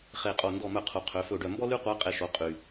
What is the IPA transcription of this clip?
χe˧˩qʼo˧˩ ndɔ˧˩mœ˧˩qʰu˩ qʰø˩˧fɵ˧˩ ɖœ˧˩mbɔ˥ ly˥qʷæ˧˥qʼe˧˩ʃo˩˧ qʼy˩

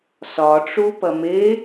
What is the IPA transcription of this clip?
sɒʈ͡ʂu pɐme

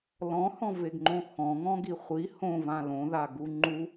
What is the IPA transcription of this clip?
lɔ̃hɔ̃veɡŋ͡ǃõ xɔ̃ ŋɔ̃ɡiχʷi hõvã lõðaɡu ŋ͡ǃu

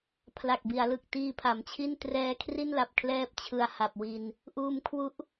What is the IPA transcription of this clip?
pʰla˨˩k̚bi˩˦a̯lɯ˨˩k̚ tiː˧pʰa˩˦mt͡ɕʰi˥˩n trɛː˦˥kʰri˥˩nla˨˩p̚ kʰlɛː˥˩p̚t͡ɕʰɯ˧a̯ha˨˩p̚wi˧n | ʔuː˧m kʰwu˦˥ʔ

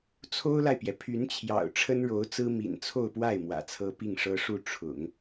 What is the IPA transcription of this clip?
t͡sʰo˥ʊ̯la˨ɪ̯pjɛ˩ pʰy˧˥nt͡ɕʰjɑ̰˨˩ʊ̯ ʈ͡ʂʰə˥nɻo˧˥ʊ̯t͡sɹ̩˥ mḭ˨˩nt͡sʰo˥˧ʊ̯pwa˥˩ɪ̯ mwä̰˨˩t͡sʰɤ˥ pi˥˩ŋʂɤ˥ʂu˥˩ ʈ͡ʂʰʊ̰˨˩˦ŋ

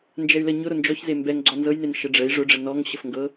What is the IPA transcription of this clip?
nd͡ʒɛy̯lə ɲʊ ɾʊnd͡ʒɔçze mbɛŋ ɡ͡ǀɔnzɤjnen ʃəɖ͡ʐəi̯ ʐʊɖ͡ʐə nɔŋ ɕəfŋɡɤ

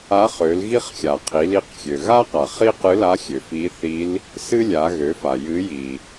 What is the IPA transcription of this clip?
a˧˥χø˩˧l ɣi˥χxʲa˩ qʰi˩˧li˧qxʲø˩ ɣa˥qa˩ χi˥qɨ˧˥la˧˥xʲø˩ fi˧˥θi˧˥l | sɨ˥lʲa˩˧ ɣø˩˧fa˩ jɨ˧˥ji˩

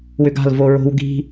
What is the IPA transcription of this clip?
wʏɡa̤l voɹo̤w ɡi̤

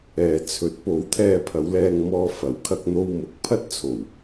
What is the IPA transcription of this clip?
ɛː˨t͡sʰɵ˨˥t̚po˨˥w t̪ʰɛː˧pʰɐ˨˧wlɛː˧ŋmɔː˧ fɐ˨˥w kʰɐ˧k̚n̪o˧w mʊ˨˥k̚pʰɐ˥t̚ t͡sʰo˨˩w

